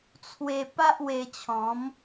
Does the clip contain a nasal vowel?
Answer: yes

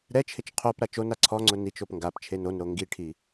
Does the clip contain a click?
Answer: yes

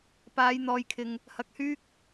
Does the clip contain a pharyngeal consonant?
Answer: no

